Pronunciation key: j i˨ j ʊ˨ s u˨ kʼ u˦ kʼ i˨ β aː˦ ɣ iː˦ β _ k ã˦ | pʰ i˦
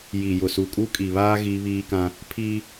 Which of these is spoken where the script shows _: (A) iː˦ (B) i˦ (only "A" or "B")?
A